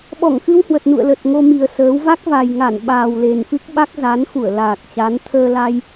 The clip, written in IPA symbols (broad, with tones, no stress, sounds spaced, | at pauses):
ɓ ɔ˧˩ ŋ x ɨ˧ w h w ə˨˩ t̚ n ṵ˧˨ ə̯ l ə˨˩ t̚ ŋ o˧ m i˨˩ ə̯ s əː˨˦ w v a˦˥ k̚ v a˨˩ j ŋ a˧˩ n ɓ aː˨˩ w l e˨˩ n f ɨ˦˥ k̚ ɓ a˦˥ k̚ z a˨˦ n x u˧˩ ə̯ l aː˨˩ k̚ t͡ɕ a˨˦ n t̪ʰ əː˧ l a˧ j